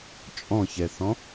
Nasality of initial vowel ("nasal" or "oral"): nasal